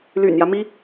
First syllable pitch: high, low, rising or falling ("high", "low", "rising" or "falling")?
low